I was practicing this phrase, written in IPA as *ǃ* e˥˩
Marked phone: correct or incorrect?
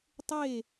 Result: incorrect